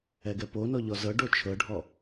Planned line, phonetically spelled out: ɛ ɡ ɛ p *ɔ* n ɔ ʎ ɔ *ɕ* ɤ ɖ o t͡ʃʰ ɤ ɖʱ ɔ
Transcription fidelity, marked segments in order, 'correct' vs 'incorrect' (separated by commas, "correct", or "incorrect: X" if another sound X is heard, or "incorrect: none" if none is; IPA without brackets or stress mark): incorrect: o, incorrect: z